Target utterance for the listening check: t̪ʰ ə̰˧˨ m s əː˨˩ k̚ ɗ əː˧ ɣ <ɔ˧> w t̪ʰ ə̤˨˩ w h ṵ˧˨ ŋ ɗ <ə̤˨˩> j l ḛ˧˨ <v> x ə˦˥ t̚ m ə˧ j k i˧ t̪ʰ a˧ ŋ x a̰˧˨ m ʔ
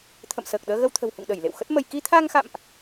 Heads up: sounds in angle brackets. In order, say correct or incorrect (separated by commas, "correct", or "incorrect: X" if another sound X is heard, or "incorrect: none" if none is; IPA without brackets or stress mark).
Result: incorrect: ə˧, incorrect: ə˧˩, incorrect: w